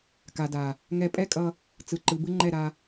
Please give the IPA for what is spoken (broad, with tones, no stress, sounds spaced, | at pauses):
k a˨ d a˨ | ŋ ɛ˧ pʼ ɛ˦ kʼ ʌ˧ | t͡s ɯ˨ ǃ ɯ˨ b ɯ˦ ŋ͡ǃ ɛ˦˨ ɾ a˧